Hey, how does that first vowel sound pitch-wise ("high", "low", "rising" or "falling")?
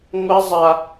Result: high